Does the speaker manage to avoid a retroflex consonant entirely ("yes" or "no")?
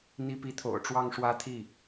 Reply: no